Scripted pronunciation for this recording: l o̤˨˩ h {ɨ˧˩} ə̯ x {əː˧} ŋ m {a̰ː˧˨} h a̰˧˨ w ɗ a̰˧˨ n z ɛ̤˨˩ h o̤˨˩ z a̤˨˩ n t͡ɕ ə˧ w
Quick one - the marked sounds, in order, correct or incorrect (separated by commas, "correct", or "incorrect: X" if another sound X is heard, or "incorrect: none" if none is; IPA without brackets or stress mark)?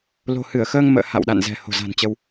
correct, correct, incorrect: ə̰ː˧˨